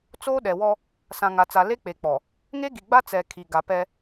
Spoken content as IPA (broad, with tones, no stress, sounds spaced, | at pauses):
t͡s oː˦ ɗ ɛ˨ w ɔ˦ | s ã˨ ŋ a˨ t͡s a˨ l e˦ k͡p e˨ k͡p ɔ˨ | ŋ e˦ ɡ i˨ ɡ͡b a˦ t͡s ɛ˨ kʰ i˨ ɡ a˨ p ɛ˦